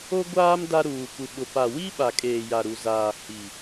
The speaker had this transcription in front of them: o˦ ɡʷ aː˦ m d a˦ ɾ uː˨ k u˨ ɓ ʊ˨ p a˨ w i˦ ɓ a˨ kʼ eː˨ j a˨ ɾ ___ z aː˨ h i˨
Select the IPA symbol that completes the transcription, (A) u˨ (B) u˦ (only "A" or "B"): A